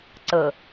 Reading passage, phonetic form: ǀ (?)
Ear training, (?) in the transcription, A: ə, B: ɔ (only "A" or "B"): A